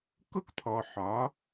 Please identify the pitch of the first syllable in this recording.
high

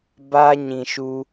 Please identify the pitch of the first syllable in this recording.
high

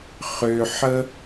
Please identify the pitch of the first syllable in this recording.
low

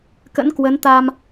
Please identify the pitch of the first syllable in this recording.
rising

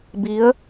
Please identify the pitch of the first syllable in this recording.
rising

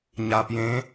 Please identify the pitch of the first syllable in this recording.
low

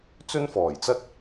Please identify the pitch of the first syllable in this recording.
high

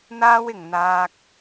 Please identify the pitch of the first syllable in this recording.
high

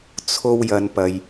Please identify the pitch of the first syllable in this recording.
high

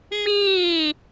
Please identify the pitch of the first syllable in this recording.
falling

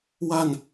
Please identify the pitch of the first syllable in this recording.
falling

